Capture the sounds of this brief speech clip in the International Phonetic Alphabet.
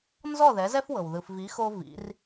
nzɔ˥˩ ðɛ˩˥zɛ˥fwɤ˩w ðɯ˩fvi˩˥xo˧ vḭ˩˥r

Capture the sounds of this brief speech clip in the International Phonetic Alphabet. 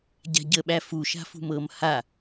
ɟa̤ɟəɓæ fuʃa̤fṳm ɤm ha

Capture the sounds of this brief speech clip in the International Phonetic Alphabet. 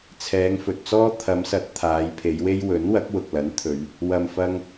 t͡sʰɛː˨˧ŋfɵ˨t̚t͡sɔː˥ t̪ʰɐ˨˧msɐ˨˥t̚ t̪ʰaː˨˧jpʰe˨˧jwe˥j wɵ˨˥nwɐ˨˥k̚ wʊ˨k̚lɐ˨˥nt̪ʰɵ˨˧ɥ | wɐ˨mfɐ˧ŋ

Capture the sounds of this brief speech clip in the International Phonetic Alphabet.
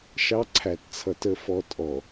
ʃɑ˦ǀʰæ˨tt͡sʰʌ˨t ə˨fɔ˨ tʼɔ˨

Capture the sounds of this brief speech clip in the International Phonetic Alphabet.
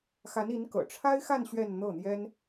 xa˧˥ni˧˥nkɤ̰˨˩ ʈ͡ʂʰa˥ɪ̯xa˥˧n ɕɥɛ˥˧nn̪ɤ˥˩n̪jɛ˥n

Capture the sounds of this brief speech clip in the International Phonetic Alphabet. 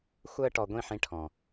xʷəː˦ʈɔ˧ɡʷĩ˦˨ħĩ˧ ʈʰɔ̃˨

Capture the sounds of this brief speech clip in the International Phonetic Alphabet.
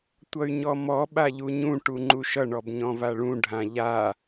tʷʌy̯ɲɔmɔ ɓaʎuɲũ ʈuŋ͡ǃuʃʌ ɳɔbɲɔ̃vaɭũ ɖʱãʎa

